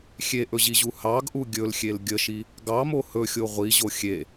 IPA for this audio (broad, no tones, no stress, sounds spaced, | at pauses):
xʲ e ʔ ɵ ʑ i ʑ u h ɑ ɡ ʔ u ɡʲ ɵ l xʲ e l ɡʲ ə ʃ i | ɡ ɑ m o h ɵ xʲ o ʁʷ i ʑ o xʲ e